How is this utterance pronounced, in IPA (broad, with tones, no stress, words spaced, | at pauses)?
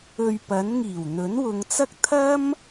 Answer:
ɵ˧ɥpɐ˨˥n ŋiː˨˩wn̪ɵ˨˥nwʊ˨˧ŋt͡sɐ˥k̚ t̪ʰɐ˥m